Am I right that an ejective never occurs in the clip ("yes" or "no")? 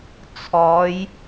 yes